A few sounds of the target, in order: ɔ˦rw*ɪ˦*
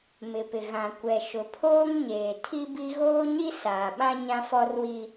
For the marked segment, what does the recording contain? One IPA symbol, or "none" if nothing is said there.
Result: i˦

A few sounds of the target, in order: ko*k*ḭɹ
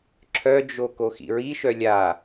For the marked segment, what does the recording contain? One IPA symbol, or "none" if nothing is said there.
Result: x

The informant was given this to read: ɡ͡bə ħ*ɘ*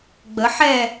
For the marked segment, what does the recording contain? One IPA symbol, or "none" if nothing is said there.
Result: ɛ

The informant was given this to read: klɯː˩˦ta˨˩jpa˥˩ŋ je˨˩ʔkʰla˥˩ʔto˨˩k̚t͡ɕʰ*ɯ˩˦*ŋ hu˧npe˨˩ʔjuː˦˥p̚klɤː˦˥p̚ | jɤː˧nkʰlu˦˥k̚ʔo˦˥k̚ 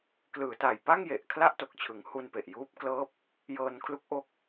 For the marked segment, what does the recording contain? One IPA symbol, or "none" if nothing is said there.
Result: ɯ˩˦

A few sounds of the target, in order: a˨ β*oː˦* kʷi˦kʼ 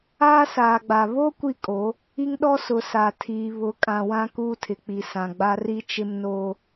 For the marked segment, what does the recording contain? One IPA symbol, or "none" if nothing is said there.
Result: o˦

